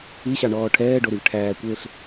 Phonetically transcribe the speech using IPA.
i ɕ ɑ ɳ ɔː ʈʰ ɛː ɖ o ɾ y v ʈʰ æː kʷ eː ɬ

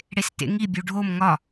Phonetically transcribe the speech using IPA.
ɽ e s t ḛ ŋ i bʲ u ɖʱ o m ŋ ɒ

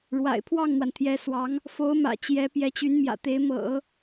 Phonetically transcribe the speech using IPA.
ɻ w a̰˨˩ ɪ̯ pʰ w ɑ˥˩ ŋ n̪ w a˩ n t̪ʰ j ɛ˧˥ s w ɑ˧˥ ŋ | f o˧˥ ʊ̯ m ä̰˨˩ t͡ɕ j ɛ˧˥ p j ɛ˧˥ t͡ɕ y˧˥ n m j ä̰˨˩ t̪ e˧˥ ɪ̯ m ɤ̰˨˩˦

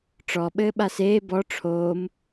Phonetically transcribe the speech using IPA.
ʈ͡ʂ ɔ ɓ ɘː ɓ a s eː b ɔ ʈ͡ʂʰ oː m

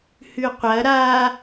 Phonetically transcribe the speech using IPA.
h ʉ qʷ ɐ ɾ a

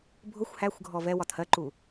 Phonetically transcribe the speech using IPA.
bʱ ʊ xʷ h æ xʷ ɡʱ ɔ v ɛ w ɒ t h ɜ ǃ u

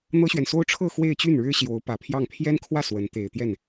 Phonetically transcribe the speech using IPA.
n̪ ɤ˥ ɕ ɥ ɛ˨ n s o˥ ʊ̯ ʈ͡ʂʰ ɤ˥˧ x w e˥˧ ɪ̯ t͡ɕ y˥˩ n ɻ ɻ̩˥ ɕ j o˧˥ ʊ̯ p ä˨˩ pʰ j ɑ˥˩ ŋ pʰ j ɛ˥ n kʰ w ä˥˩ s w ə˧˥ n t̪ e˨˩ ɪ̯ t̪ j ɛ˥˩ n

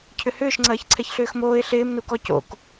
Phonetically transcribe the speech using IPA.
cʰ ʏ h ʏː ʃ ŋ͡ǀ ɐː ç ǀʰ ɛ ç ɬ ʏː x m oː ɪ̯ ɬ ɪː m n u k ɔ c o̰ k

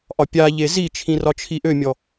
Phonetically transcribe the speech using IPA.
ʔ ɒ pʲ a ʎ e z i t͡ʃʰ ĩ r ɒ t͡ʃʰ i ʔ ø mʲ ɔ

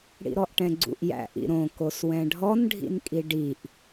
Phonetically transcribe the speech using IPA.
ɽ ḭ ɾ ɔ ʔ ʈ ɛ̃ ɡ͡ǀ ṵ ʔ j æ̰ ʔ ḭ ɾ õ k o s w ɛ̃ ɖʱ ɔ n ɖʱ ḭ n kʼ i ɖ i ʔ

